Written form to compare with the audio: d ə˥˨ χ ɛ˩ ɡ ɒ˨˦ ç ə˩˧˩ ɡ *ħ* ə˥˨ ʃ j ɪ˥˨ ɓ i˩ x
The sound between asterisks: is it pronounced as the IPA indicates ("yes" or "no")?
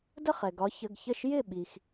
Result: no